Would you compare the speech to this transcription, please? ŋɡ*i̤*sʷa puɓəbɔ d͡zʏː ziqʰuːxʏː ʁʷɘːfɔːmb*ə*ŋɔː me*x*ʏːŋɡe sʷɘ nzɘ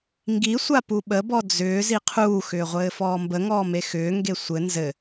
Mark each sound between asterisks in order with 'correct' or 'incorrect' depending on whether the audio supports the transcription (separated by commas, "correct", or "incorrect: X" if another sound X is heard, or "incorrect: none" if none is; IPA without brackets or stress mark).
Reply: incorrect: i, correct, correct